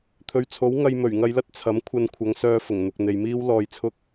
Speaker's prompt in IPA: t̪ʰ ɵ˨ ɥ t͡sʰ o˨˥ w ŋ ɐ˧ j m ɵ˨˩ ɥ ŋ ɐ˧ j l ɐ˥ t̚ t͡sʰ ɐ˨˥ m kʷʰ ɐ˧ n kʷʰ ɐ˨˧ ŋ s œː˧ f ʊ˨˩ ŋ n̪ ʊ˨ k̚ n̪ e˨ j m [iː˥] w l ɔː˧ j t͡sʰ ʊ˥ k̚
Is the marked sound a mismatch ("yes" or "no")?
no